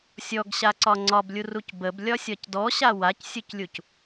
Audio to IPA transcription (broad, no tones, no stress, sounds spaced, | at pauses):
sʲ ɔ ɡ ɕ a ǀ ɒ ŋ͡ǀ ɒ b lʲ u r u c b ə b lʲ ɒ sʲ ɒ c d ɔ ɕ a w a c sʲ u c lʲ u c